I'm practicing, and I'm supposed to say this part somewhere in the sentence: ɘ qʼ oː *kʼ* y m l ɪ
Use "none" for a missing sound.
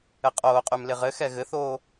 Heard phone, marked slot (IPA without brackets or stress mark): qʼ